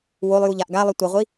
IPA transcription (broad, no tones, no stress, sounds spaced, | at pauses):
w o lˠ j u ʎ a ʔ ɡ a lˠ ʌ tʷ ʌ ʁʷ i